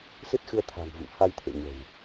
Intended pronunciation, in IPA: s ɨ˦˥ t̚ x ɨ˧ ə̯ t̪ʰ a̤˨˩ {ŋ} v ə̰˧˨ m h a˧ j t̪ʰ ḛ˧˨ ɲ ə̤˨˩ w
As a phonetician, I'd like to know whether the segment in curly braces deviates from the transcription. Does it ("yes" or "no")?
no